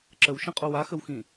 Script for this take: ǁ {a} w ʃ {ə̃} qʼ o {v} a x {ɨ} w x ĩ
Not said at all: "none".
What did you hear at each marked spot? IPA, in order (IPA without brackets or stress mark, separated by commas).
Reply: ə, ə̃, w, ə